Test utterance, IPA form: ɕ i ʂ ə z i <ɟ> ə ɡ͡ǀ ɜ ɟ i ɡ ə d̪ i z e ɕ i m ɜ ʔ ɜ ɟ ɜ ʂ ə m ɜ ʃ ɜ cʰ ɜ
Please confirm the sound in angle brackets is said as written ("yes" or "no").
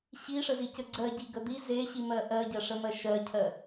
no